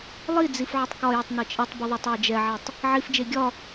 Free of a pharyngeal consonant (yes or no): no